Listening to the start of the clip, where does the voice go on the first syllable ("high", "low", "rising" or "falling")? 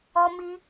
high